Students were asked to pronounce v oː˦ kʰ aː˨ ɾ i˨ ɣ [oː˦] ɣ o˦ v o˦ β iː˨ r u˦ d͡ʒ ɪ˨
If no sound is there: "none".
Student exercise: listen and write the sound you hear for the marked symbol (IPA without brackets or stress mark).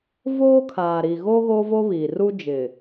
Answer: oː˦